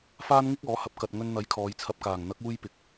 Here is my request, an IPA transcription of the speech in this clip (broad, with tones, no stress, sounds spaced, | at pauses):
f aː˥ n ŋ ɪ˥ k̚ ɔː˨˥ h ɐ˨˥ p̚ k ɐ˧ t̚ ŋ ɵ˧ n n̪ ɐ˨˥ j kʰ ɔː˨˧ j t͡sʰ ɐ˧ p̚ k aː˨˩ ŋ n̪ ɐ˨˥ k̚ uː˥ j p ɪ˨˥ k̚